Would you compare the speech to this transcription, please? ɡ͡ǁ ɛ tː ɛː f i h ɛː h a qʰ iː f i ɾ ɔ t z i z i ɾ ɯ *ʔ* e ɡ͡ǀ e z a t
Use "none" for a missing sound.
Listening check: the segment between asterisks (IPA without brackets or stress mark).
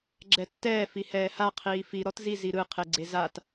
qʰ